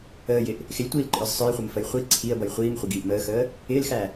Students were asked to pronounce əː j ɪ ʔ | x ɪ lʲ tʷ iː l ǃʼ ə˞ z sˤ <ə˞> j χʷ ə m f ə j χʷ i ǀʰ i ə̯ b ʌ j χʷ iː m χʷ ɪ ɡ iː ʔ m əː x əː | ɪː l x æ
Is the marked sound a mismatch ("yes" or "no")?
no